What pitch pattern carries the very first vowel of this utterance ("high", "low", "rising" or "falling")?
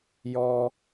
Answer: high